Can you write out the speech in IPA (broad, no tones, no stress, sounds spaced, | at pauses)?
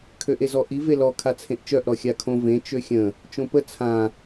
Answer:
kʰ ø ʔ e z ɔ ʔ i v e l ɔ kʰ a t͡sʰ ẽ ʔ t͡ʃ œ ʔ ɾ ɔ xʲ a kʰ õ v ẽ t͡ʃ ø xʲ ə̃ | t͡ʃ õ p ə t͡sʰ ã